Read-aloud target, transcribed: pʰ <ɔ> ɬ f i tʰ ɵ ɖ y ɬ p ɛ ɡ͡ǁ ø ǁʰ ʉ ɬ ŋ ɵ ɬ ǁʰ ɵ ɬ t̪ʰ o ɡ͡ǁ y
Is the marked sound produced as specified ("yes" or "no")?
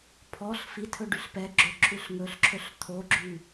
yes